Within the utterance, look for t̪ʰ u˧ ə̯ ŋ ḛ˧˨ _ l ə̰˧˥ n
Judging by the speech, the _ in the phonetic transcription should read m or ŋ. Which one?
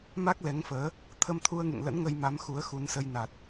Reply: ŋ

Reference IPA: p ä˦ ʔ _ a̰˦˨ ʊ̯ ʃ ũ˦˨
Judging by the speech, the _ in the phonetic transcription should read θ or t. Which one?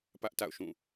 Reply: t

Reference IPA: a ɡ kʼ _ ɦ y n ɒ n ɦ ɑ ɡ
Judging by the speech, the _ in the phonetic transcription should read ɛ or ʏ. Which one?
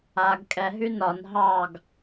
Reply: ɛ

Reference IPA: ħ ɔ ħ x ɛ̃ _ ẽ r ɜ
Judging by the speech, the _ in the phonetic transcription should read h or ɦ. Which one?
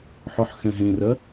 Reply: ɦ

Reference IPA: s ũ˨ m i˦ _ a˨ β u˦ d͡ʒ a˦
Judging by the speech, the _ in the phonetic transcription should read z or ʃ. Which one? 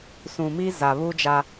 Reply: z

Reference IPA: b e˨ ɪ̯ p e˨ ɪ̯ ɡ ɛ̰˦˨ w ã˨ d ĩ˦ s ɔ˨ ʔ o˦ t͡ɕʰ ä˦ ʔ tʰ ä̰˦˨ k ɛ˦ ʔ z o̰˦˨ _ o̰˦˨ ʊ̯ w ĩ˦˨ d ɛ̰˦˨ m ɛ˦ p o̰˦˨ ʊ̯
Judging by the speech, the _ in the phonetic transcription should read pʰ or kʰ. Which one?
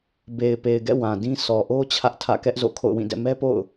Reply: kʰ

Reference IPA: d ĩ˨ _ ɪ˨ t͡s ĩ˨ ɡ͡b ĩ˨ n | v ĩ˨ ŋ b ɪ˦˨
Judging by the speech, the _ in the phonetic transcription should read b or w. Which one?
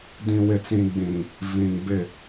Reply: w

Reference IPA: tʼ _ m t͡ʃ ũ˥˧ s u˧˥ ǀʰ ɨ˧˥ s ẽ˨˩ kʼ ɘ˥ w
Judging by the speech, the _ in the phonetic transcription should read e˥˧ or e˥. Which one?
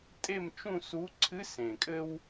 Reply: e˥˧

